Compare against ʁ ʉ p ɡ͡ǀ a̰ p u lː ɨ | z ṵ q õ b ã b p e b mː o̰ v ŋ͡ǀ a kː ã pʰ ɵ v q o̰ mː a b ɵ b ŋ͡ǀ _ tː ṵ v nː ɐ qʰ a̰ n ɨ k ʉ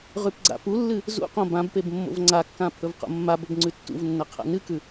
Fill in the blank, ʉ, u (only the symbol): ʉ